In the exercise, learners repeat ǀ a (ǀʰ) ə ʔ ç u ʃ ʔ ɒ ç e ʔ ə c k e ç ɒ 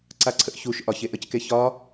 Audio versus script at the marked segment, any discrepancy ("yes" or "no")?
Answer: no